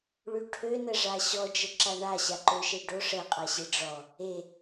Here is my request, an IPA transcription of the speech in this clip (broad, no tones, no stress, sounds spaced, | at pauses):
ɭ y ʈʰ ø n ə ʐ a ɕ ɔ d͡ʒ ə ǁ a ɳ a ɕ a ǃ ø ʃ e ɖ o ʂ ə qʼ a ɕ e ɖ͡ʐ ɔ | e